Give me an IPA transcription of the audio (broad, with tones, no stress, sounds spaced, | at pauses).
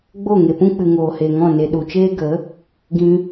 ɡ͡b o˦˨ ŋ e˨ p ũ˦ k͡p ɨ˨ ŋ oː˨ h eː˨ ŋ ɔ̃˦˨ n e˨ ɗ u˨ t͡ʃ eː˦ ɡ ə˨˦ | ɡ ĩ˧